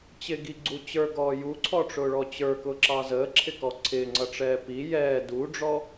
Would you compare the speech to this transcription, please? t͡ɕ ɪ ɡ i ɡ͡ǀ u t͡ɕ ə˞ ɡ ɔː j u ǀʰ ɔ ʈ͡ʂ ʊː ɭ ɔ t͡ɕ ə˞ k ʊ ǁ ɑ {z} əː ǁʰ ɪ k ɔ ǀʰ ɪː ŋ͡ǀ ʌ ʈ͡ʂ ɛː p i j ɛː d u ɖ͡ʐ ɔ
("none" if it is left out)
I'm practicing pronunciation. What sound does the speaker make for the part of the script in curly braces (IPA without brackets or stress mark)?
z